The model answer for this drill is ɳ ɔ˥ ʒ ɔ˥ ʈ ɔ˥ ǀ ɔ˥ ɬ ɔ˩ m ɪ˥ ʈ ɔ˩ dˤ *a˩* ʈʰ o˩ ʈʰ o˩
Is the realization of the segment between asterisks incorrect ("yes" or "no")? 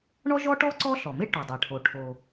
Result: no